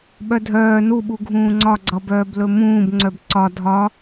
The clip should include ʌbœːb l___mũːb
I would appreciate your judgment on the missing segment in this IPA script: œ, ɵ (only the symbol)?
ɵ